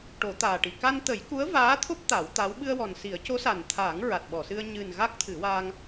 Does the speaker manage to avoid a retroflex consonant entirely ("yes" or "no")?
no